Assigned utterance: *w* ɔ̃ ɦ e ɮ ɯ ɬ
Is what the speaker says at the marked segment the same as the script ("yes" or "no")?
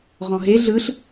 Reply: no